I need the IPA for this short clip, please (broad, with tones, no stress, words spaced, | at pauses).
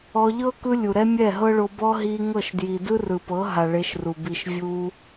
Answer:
ɔ˧ ʎɤ˦ kɯ˦lʲu˨ɾɛ˦ mʲɛ˦˨ɦɤ˦ɭo˧bɔ˦ ɦi˧ ŋɤ˦˨ʃ dji˨dɯ˦rɯ˨pɤ˨˦ ɦa˨ ɭe˧ʃru˨ bi˨ʃ vʲu˧